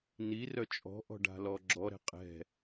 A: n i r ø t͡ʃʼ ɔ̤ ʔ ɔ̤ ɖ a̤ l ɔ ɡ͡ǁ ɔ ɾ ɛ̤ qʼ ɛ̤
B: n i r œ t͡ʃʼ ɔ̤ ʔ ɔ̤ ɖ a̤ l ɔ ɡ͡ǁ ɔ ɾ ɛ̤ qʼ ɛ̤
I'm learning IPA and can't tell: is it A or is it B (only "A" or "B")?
B